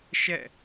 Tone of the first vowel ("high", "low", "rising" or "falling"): falling